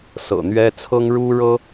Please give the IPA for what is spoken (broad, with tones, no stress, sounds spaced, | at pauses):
s ɤ̰˨˩ n̪ ɥ ɛ˥ t͡sʰ ɤ˥ ŋ ɻ u˥ ɻ ɤ˥